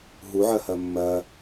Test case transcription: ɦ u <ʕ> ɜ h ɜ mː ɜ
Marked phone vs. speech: correct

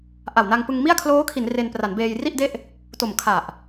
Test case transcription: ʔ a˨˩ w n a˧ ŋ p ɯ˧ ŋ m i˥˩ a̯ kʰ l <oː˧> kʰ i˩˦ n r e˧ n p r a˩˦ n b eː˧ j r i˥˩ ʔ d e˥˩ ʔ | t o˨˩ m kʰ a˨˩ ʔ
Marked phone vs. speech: incorrect: oː˦˥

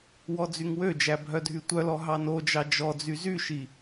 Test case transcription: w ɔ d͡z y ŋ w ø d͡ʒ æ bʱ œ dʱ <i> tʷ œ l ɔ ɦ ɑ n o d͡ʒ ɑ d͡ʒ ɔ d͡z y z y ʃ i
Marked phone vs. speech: incorrect: y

